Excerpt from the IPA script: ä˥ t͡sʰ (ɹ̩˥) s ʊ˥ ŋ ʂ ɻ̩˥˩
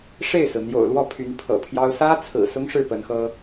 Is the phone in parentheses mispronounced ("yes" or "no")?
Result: yes